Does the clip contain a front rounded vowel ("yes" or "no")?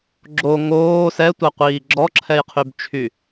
yes